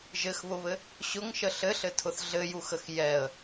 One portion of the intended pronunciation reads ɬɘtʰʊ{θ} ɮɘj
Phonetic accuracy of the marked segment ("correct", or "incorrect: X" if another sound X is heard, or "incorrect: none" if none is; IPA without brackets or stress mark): correct